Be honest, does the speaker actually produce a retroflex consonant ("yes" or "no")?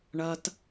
yes